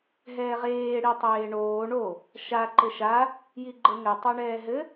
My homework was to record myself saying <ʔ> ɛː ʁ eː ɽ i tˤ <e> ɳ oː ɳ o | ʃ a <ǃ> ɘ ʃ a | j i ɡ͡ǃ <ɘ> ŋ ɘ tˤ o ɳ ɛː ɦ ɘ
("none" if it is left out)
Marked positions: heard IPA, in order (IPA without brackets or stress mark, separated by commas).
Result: ɦ, eː, ǃ, ɘ